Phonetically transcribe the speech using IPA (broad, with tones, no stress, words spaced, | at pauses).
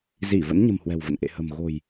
zi˧˩ və̰˧˥nɲə̤˨˩m hwɛ̤˨˩wvə̰˧˨n ʔḛ˧˨hə̤˨˩m ɣo̤˨˩j